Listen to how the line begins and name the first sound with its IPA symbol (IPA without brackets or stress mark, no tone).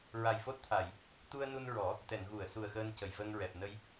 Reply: ɹ